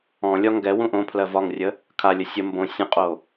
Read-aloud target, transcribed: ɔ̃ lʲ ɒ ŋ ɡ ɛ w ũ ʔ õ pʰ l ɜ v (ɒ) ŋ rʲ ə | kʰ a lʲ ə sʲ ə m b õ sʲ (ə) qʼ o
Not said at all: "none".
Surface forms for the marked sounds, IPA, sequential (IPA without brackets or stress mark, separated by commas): ɒ, ə̃